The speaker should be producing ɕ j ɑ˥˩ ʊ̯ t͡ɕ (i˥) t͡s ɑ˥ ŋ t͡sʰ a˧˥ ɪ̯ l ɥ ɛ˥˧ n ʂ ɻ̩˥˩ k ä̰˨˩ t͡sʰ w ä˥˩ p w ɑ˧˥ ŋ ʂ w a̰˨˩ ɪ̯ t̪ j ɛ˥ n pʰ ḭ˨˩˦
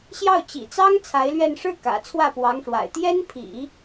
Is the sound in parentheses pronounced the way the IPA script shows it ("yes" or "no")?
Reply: no